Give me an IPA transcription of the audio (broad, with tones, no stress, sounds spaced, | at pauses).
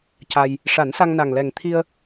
c a˧ j | ʂ a˨˩˦ n s a˧ ŋ n a˨˩ ŋ l ɛ˨˩ ŋ t̪ʰ i˧ ə̯